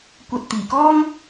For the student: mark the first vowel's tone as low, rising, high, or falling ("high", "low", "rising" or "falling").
low